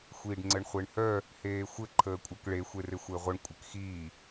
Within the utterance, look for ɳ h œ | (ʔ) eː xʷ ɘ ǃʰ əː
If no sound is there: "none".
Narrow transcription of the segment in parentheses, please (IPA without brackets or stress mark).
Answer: h